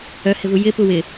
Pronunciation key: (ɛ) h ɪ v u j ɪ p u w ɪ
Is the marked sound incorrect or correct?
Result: incorrect